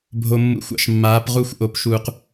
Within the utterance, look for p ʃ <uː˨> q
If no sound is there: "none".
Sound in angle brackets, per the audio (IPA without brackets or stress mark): uː˨